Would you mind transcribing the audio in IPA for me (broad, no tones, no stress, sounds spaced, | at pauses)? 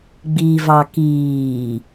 ɡ͡b i v ɑ k iː